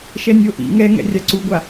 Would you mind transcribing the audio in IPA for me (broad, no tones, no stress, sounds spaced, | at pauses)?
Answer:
ʃ ɛ nʲ o ʔ ḭ ŋ ɛ ŋ ɛ̰ rʲ a ǀ u ɡʷ a